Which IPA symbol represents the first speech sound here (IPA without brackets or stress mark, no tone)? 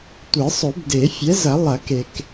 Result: tʷ